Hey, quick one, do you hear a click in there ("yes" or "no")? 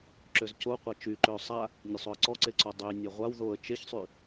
yes